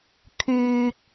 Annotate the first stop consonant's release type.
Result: aspirated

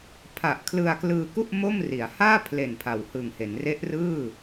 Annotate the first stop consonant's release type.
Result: aspirated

